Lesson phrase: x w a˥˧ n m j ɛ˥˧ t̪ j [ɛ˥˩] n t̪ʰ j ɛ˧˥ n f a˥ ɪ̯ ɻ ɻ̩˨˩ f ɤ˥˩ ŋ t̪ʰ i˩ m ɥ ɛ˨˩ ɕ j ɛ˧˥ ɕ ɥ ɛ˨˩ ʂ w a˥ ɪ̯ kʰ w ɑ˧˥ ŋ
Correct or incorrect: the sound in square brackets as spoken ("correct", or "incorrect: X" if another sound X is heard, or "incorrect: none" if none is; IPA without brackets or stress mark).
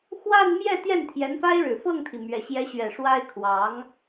correct